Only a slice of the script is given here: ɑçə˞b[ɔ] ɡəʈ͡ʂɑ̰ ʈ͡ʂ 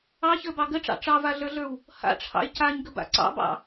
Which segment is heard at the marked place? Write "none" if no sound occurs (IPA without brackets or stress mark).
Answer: ɑ